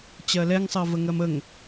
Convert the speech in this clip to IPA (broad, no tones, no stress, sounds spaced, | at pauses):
t͡ɕ ɜ l ɛ ŋ sˤ ɜ v ə ŋ ɜ m ə ŋ